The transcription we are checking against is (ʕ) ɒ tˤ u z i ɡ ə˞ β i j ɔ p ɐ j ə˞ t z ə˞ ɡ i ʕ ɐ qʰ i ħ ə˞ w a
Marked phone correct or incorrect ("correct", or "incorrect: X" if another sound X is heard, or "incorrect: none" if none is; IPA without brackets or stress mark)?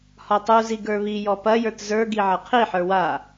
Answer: incorrect: h